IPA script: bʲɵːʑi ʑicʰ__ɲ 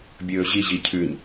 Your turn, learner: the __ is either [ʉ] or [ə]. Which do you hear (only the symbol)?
ʉ